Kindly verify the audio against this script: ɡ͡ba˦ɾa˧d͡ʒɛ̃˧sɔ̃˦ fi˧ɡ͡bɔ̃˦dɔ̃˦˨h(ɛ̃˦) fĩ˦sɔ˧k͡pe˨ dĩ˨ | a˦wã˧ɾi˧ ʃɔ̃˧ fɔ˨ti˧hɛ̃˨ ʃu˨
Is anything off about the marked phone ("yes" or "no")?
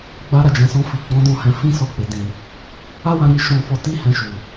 yes